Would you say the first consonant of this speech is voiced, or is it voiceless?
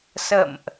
voiceless